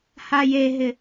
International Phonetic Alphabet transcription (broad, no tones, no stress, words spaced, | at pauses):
hajeɦɪ